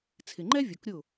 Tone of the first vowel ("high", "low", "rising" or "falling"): low